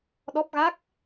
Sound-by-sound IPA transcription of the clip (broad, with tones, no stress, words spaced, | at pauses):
ɗɔ˦˥p̚ɣa˦˥k̚